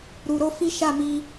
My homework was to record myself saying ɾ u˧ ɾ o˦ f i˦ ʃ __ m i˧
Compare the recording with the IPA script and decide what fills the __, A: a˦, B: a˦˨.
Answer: B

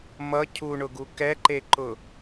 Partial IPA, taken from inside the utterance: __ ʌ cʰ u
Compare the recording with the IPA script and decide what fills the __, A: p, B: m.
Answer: B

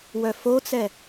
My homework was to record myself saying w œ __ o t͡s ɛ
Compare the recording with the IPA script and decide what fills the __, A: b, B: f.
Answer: B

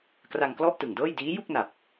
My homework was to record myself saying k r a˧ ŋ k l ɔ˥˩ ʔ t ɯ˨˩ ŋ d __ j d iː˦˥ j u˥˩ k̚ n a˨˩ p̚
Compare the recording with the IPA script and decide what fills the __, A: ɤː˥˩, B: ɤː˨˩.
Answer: A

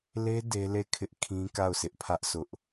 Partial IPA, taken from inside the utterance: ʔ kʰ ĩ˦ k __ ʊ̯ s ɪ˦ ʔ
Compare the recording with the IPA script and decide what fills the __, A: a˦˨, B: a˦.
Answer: A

